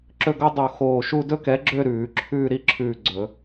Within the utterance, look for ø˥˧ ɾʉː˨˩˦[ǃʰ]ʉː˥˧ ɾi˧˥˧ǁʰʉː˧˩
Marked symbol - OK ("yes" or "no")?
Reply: no